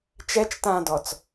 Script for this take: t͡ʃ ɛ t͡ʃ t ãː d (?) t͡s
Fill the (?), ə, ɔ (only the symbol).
ɔ